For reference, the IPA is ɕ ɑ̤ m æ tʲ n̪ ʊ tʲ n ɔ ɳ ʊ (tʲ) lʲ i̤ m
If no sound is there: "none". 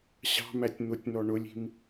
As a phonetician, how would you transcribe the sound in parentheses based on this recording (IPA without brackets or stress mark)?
none